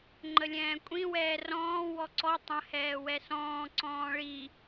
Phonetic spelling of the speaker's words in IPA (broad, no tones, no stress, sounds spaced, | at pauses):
ŋ͡ǃ ə lʲ ɛ̃ː kʷʼ ĩ w ɛː r ɔ̃ː w ɔ ǀ ɔ tˤ ə̃ h ɛː w ɛ s ɔ̃ː ǀ ɔ̃ː ɭ i